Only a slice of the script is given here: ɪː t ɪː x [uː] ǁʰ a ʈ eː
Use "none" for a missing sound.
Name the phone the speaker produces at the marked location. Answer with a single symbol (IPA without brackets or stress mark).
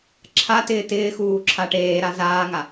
uː